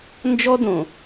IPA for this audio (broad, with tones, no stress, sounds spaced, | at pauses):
n d͡ʒ ɔ˦ d õ˨